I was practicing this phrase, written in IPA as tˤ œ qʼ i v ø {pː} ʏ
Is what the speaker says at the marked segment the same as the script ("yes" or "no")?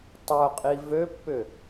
yes